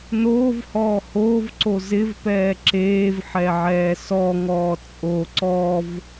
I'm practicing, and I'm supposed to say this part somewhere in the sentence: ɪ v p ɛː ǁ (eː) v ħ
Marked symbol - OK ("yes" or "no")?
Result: yes